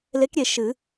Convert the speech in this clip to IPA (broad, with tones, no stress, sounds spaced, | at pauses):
l e˧˥ k ɾʲ e˨ ʃ ɨ˨˩˦